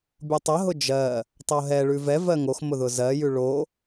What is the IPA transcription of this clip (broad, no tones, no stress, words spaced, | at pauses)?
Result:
bʲotˤəɦʊ d͡ʒɜ | tˤoɦɛɭʉ vɛvɜ ŋoxmʊ ðʊzɜjʉ ɭo